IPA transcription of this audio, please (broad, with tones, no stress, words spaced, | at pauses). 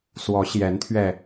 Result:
swɔ˧˥ɕjɛ˧˥nt̪ʰɥɛ˧